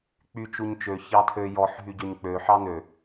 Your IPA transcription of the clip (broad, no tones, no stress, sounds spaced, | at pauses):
k͡p y t͡ʃ u ɲ t͡ʃ ø ç ɑ tʰ ø j ɔ ħ ɦ y ɟ ø ɲ k͡p ø ħ ɑ n ø